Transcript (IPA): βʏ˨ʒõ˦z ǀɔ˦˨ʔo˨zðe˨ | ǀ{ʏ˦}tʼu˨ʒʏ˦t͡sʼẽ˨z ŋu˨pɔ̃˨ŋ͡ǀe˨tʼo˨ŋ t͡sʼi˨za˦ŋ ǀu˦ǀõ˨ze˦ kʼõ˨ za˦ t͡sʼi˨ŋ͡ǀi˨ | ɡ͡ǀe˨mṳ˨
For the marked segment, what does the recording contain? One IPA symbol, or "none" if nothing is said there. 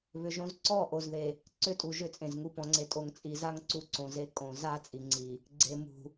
ʏ˦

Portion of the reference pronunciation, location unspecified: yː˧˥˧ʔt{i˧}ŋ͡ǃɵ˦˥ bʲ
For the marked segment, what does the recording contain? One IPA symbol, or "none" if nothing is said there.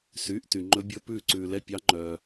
y˧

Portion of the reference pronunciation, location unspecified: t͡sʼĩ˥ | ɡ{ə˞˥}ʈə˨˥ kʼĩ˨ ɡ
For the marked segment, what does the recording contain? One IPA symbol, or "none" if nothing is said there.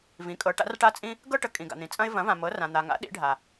ɤ˥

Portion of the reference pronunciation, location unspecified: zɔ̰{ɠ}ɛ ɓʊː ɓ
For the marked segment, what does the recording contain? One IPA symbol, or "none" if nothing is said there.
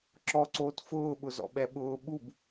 ɓ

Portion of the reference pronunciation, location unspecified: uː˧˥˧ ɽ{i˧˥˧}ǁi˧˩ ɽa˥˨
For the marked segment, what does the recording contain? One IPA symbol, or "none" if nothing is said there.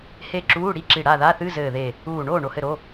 i˧˥˧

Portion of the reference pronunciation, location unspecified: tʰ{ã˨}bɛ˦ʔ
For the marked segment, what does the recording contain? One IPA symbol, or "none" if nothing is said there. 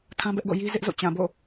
ã˦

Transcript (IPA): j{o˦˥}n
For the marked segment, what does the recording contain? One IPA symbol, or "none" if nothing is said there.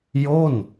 o˥˩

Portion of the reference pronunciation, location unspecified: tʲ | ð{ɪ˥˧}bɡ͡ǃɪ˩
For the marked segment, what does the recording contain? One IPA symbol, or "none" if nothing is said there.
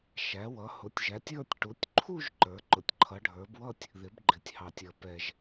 ɪ˩˧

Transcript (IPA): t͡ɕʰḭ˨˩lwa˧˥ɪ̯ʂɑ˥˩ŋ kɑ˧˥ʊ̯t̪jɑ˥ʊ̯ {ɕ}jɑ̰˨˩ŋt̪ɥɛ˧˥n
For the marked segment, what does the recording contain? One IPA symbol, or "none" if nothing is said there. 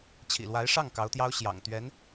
ɕ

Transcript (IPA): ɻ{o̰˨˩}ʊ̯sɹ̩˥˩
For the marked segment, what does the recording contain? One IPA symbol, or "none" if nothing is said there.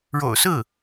o̰˨˩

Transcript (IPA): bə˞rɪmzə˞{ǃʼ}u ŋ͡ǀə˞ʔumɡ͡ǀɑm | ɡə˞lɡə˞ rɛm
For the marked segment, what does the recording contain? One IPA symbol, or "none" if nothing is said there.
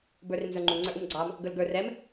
ŋ͡ǃ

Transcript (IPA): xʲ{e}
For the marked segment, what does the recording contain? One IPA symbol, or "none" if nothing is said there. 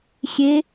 e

